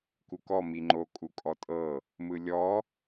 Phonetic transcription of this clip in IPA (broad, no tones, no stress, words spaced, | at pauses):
kukɔ miŋ͡ǃo kʼukʼɔtʼɤ | mɯlʲɔ